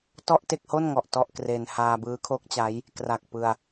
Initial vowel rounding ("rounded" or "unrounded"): rounded